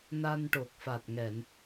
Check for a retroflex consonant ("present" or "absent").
present